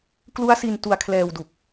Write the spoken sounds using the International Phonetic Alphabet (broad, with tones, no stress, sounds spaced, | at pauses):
k l u˦˥ a̯ s i˧ n t u˧ a̯ kʰ l ɛː˧ w d u˨˩ k̚